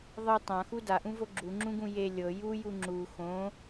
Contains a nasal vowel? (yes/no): yes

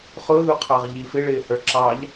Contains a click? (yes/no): yes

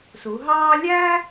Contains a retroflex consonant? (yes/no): no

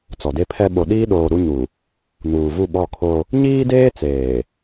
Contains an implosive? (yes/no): yes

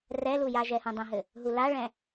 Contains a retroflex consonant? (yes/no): yes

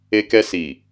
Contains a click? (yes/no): no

